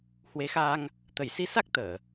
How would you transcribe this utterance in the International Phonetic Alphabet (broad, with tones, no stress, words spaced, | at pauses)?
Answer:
hwe˨˦xaː˧ŋ | t̪ə˧˩jsi˧sa˦˥k̚ t̪əː˧˩˨